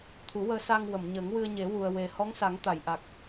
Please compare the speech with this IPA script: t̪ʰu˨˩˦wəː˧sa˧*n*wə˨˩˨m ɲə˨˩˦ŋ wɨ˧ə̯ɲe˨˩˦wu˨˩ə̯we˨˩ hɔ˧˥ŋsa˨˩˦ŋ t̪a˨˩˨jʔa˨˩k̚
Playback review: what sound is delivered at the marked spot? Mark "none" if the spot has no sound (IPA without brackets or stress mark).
ŋ